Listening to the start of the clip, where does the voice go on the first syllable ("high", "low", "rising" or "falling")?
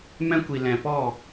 high